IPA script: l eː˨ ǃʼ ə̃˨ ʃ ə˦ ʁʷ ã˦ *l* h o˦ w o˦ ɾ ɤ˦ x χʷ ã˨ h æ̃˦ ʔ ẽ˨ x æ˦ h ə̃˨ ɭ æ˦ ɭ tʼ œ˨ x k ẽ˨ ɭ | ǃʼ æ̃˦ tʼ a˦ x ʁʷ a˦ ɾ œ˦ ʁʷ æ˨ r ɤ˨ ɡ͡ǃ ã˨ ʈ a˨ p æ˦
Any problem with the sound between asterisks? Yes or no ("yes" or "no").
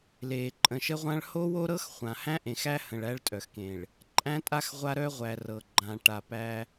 yes